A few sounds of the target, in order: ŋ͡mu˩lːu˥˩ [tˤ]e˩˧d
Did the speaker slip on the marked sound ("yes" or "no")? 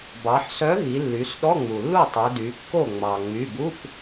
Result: no